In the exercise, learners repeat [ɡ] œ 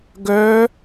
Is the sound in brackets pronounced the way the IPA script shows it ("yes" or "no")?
yes